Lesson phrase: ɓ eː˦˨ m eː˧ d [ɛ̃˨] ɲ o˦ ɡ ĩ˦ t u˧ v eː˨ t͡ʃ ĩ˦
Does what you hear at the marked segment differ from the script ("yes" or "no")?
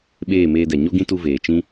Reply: yes